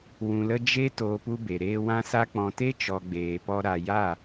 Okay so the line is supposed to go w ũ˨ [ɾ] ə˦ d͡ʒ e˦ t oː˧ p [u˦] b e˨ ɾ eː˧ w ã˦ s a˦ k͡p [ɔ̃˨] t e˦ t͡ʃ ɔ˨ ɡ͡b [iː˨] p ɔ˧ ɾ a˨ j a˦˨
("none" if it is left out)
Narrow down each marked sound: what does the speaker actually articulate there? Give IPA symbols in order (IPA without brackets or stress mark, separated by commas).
l, u˦, ɔ̃˨, eː˨